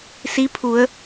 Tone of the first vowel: rising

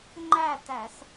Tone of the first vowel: falling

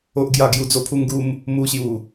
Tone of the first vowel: high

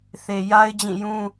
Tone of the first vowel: low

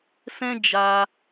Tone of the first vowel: high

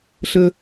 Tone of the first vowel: low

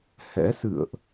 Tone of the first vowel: rising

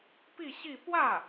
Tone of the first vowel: falling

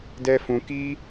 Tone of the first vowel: high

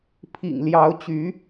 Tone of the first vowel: low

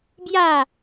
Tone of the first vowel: falling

